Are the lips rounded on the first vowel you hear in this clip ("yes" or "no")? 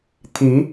no